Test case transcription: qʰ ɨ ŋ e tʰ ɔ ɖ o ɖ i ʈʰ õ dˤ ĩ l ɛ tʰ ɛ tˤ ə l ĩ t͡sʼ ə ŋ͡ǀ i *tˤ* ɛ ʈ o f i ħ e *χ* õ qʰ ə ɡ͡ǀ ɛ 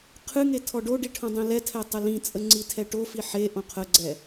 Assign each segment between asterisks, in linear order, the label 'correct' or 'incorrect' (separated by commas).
incorrect, incorrect